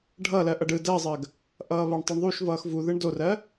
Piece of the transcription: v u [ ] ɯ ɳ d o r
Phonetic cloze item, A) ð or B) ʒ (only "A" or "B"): A